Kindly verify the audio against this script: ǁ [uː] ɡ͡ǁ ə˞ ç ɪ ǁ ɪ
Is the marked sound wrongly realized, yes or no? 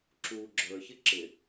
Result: no